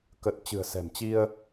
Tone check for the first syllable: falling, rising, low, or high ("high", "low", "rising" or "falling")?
low